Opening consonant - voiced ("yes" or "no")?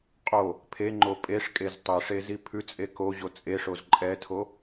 no